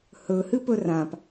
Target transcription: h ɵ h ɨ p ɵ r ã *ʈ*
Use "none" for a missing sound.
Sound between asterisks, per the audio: p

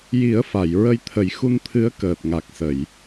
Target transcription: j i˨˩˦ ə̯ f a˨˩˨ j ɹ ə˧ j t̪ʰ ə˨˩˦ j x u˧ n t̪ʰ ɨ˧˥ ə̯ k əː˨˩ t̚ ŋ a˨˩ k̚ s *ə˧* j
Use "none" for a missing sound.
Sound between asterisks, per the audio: ə˨˩˨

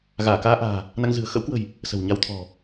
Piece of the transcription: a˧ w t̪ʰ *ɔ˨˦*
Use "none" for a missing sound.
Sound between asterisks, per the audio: ɔ̤˨˩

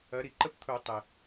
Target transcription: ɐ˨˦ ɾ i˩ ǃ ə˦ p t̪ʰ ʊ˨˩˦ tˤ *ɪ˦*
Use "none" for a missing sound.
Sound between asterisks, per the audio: ɪ˩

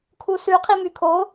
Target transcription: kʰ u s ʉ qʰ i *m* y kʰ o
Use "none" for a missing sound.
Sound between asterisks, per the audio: m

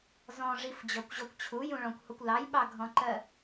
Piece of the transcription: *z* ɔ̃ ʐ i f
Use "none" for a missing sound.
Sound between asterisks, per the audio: z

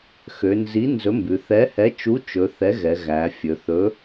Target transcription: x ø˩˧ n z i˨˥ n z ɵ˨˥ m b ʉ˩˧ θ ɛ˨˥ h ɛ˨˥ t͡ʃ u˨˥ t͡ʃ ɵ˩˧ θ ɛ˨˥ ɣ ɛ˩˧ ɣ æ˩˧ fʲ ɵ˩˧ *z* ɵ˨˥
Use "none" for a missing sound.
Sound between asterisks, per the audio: θ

